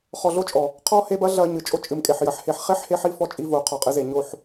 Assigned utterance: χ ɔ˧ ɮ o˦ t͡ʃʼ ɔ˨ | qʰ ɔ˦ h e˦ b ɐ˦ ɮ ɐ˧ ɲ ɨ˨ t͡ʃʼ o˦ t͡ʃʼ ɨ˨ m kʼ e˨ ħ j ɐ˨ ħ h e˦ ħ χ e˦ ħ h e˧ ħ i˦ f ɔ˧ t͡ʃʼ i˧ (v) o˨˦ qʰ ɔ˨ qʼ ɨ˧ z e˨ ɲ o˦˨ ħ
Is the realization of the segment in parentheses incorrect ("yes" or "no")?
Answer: no